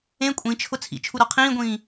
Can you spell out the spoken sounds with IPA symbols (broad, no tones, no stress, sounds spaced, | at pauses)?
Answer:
ẽ kʷʼ ĩ t͡ʃʰ ʊ t͡sʰ ḭ t͡ʃʰ u ɾ ɒ qʰ ĩː ɡʷ ĩː